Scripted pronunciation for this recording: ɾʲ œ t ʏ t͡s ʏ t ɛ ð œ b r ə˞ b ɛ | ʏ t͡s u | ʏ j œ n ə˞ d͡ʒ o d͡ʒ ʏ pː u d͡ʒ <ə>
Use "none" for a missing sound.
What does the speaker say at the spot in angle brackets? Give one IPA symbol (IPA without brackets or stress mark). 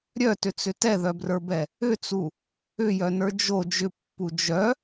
œ